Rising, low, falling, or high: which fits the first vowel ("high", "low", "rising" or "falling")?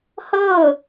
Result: falling